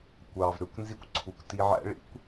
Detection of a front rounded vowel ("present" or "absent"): present